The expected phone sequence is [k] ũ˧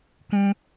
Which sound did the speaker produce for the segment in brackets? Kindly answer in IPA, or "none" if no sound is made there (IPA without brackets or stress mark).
k